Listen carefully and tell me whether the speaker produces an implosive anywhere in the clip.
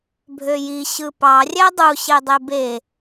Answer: no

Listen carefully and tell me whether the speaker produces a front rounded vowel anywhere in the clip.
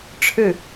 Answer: no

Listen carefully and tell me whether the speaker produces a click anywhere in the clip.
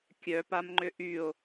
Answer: yes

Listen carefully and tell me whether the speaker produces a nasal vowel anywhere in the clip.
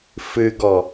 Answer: no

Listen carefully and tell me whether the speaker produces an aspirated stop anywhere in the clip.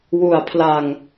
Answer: yes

